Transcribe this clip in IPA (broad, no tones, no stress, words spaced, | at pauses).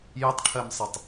jətˤʈʰɜmsˤətˤ